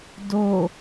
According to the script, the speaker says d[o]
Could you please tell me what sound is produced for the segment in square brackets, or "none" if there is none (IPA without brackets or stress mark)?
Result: o